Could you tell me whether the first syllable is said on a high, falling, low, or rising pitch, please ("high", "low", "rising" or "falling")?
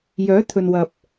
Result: rising